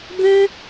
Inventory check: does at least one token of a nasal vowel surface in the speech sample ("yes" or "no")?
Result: yes